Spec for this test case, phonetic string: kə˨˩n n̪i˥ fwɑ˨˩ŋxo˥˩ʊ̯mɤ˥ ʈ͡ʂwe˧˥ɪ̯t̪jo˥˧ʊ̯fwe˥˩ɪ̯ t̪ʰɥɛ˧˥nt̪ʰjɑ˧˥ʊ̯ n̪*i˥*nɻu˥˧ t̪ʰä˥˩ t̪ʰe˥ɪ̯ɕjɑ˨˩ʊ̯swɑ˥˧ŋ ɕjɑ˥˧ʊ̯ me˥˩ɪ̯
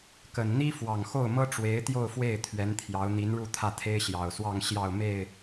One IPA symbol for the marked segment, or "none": i˧˥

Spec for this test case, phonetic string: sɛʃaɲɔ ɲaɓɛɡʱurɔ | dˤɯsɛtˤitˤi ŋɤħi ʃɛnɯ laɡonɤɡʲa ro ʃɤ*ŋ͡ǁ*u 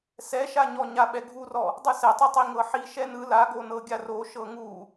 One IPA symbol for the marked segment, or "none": ŋ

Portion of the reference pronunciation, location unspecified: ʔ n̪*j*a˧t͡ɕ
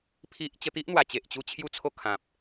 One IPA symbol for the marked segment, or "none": w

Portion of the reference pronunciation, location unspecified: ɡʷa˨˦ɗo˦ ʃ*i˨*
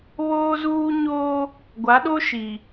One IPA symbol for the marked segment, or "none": i˨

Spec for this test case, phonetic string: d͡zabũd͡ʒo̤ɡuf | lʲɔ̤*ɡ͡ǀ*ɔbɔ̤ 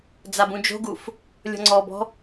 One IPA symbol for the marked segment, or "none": ŋ͡ǀ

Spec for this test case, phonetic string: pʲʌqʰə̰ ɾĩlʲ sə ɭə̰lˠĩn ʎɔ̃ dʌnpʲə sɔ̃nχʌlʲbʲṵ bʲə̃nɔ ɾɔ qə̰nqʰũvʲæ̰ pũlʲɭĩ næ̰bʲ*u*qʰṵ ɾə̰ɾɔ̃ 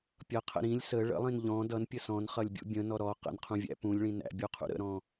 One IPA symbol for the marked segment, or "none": u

